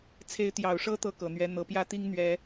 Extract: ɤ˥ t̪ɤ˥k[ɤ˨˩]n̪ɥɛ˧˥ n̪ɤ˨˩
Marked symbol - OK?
yes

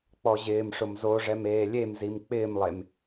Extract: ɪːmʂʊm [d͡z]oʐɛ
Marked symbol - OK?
no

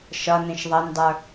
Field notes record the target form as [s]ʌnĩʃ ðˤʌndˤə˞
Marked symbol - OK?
no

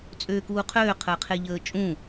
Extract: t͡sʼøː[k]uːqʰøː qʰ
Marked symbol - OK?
yes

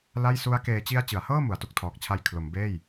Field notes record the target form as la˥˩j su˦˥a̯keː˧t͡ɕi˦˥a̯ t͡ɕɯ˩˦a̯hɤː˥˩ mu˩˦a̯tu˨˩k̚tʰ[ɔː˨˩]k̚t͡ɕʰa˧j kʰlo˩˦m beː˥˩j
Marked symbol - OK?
yes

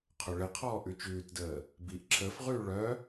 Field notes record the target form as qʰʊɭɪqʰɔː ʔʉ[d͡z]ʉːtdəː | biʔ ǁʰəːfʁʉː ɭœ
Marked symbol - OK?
no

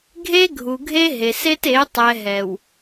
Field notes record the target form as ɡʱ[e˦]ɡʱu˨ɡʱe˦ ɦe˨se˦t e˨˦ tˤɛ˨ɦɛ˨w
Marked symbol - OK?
yes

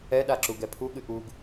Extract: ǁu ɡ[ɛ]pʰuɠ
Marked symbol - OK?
yes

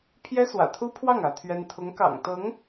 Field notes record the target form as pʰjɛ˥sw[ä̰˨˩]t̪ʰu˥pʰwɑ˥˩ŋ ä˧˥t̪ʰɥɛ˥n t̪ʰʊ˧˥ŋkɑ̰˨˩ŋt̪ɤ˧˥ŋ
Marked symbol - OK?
yes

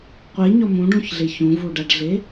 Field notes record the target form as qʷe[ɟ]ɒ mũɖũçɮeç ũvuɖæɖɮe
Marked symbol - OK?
no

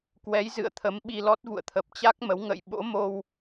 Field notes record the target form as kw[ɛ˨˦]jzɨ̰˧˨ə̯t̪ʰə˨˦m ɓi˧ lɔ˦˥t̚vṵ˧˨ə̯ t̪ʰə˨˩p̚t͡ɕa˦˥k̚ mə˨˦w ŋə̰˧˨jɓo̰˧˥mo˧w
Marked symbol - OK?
yes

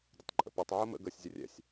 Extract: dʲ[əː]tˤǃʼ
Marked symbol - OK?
no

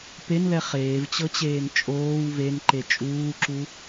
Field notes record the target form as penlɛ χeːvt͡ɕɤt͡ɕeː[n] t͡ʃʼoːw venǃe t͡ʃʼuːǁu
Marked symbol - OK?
yes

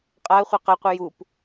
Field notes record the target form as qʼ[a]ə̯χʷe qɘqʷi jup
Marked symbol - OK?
yes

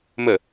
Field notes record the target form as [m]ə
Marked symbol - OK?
yes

